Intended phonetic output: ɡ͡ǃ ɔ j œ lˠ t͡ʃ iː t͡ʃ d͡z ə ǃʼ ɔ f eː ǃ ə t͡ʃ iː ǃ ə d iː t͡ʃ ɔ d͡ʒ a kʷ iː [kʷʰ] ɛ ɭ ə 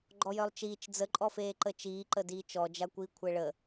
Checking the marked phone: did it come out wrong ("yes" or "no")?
no